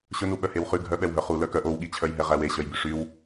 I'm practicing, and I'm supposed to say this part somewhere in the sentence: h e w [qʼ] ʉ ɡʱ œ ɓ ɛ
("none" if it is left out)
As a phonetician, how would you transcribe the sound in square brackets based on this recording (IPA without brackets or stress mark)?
χ